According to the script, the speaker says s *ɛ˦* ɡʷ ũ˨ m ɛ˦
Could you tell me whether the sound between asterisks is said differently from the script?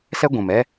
no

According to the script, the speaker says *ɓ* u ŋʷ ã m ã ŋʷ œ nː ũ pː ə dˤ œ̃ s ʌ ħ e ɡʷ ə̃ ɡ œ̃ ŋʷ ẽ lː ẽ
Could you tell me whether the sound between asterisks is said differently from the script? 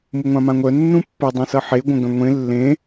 yes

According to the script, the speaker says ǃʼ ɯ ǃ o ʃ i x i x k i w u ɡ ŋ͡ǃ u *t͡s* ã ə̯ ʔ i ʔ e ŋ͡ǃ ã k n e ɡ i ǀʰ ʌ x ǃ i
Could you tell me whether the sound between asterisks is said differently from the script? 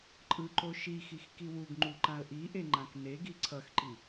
yes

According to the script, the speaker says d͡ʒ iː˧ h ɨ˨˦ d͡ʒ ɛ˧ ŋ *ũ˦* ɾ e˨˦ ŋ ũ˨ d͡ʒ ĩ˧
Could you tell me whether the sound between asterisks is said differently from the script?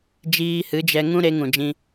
no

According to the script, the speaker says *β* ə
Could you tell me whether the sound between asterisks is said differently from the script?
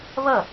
no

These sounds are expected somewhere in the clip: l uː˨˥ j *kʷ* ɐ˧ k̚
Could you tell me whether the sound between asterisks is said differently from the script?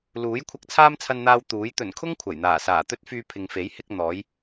yes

